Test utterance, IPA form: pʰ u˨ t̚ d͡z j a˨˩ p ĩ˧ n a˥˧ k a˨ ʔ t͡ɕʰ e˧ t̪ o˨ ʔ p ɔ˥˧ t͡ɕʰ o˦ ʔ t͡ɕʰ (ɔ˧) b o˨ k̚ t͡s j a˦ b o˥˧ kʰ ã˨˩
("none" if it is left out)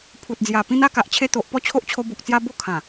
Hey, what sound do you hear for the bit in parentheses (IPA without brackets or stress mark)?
o˧